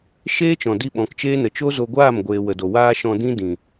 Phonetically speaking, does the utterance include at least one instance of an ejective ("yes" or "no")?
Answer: no